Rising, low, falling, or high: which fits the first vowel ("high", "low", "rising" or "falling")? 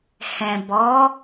low